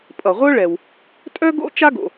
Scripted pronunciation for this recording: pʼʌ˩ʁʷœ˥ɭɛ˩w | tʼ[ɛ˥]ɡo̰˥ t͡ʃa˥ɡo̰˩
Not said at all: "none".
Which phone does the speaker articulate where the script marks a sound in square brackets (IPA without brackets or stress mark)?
œ˥